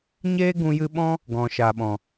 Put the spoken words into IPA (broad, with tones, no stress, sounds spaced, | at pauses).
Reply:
ɲ eː˦ ɡ ũ˧ j ɨ˧ ɓ ɔ̃˦ | ɡ ɔ̃˨ ʃ a˨ ɓ ɔ̃˨